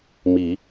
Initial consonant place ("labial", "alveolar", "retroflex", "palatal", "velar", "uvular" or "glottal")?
labial